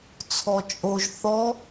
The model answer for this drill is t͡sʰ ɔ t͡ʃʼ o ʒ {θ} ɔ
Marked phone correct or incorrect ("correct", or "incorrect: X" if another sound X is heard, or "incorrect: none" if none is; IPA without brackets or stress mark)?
correct